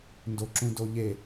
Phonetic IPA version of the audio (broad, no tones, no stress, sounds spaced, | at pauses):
n d o ǁ ũ d o ʎ e